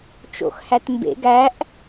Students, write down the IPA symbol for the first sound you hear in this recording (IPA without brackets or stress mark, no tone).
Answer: t͡ʃ